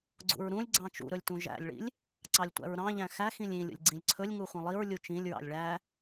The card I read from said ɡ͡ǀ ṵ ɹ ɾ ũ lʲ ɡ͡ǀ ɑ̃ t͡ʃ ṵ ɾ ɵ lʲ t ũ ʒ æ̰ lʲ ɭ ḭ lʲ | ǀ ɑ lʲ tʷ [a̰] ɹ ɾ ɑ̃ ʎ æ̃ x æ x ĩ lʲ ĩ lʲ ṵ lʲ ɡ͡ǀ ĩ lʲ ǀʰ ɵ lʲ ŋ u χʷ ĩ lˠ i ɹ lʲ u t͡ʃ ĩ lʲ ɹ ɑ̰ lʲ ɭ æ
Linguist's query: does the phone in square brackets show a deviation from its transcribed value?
yes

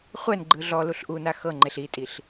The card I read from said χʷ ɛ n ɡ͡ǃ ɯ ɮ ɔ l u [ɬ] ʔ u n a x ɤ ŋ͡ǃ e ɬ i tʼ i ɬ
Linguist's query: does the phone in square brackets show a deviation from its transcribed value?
no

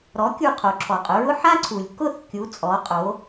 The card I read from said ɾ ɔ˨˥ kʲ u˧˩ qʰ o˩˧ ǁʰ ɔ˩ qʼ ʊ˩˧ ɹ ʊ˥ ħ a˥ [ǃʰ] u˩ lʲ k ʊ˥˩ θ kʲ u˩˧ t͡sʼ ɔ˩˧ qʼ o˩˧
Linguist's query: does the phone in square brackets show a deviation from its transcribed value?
yes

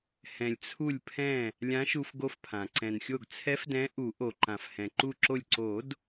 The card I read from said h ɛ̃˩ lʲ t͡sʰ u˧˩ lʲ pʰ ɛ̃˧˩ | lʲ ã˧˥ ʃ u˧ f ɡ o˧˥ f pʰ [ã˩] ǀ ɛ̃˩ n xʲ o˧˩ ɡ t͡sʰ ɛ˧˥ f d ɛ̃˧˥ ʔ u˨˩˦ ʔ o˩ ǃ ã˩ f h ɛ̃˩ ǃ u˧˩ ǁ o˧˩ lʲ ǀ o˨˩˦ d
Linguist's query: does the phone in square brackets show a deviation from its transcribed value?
no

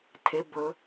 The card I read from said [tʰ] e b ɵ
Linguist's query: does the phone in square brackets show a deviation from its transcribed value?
no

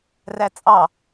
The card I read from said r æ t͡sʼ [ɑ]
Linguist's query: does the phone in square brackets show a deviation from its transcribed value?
no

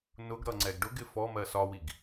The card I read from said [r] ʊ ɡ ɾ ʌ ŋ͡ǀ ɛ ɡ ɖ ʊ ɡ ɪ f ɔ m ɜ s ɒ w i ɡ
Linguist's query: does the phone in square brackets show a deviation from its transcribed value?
yes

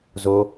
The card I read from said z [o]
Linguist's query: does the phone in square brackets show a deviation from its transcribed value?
no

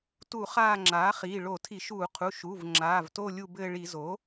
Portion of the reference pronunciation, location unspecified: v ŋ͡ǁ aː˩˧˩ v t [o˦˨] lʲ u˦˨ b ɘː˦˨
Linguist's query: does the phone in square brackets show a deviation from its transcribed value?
no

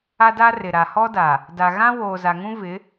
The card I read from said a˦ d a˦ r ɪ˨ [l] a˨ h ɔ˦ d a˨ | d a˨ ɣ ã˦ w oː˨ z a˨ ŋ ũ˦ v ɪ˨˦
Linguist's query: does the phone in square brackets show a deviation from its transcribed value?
yes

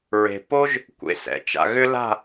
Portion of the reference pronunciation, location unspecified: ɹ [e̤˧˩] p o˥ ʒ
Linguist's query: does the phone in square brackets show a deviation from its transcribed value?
yes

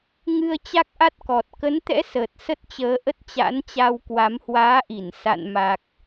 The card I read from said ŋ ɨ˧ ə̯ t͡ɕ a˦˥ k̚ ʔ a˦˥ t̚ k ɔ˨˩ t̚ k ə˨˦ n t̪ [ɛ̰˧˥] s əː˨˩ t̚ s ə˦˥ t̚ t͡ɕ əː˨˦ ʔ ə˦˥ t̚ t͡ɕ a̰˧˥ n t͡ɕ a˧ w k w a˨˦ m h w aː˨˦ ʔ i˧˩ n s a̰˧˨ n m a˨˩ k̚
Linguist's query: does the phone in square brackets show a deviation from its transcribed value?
no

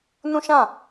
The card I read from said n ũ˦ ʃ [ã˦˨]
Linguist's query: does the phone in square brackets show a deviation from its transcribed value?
no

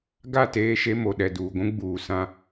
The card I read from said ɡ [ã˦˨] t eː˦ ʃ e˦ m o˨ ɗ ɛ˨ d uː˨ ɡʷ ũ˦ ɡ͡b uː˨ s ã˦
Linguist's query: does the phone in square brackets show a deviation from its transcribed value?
yes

